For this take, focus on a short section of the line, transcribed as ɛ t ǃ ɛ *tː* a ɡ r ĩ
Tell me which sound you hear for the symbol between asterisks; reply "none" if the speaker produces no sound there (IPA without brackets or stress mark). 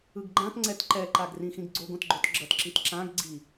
ǃ